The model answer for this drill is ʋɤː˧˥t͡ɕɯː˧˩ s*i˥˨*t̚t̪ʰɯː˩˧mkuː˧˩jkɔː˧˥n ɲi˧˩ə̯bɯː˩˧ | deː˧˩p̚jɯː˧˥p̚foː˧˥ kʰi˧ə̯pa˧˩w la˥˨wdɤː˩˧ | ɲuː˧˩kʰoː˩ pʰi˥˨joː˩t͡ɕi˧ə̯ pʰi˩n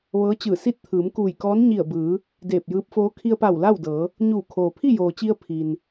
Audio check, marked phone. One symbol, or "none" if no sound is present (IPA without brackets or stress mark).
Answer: i˥˨